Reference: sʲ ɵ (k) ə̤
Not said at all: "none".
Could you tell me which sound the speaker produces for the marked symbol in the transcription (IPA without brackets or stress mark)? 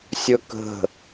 k